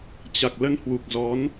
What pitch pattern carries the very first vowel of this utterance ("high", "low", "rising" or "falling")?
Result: low